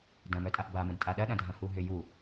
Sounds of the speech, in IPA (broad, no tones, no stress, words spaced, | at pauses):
dɐ̃mœtʼaʔ bamə̃d tʼaɗɐ ɗɐ̃dʱɐ̃huɦʏ ju